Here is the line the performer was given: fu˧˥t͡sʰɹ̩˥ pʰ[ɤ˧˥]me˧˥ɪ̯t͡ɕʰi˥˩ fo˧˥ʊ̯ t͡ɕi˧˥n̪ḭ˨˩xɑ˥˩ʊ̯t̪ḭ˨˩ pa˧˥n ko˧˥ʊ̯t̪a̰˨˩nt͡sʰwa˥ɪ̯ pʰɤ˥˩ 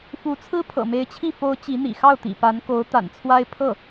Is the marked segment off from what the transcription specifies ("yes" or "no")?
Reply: yes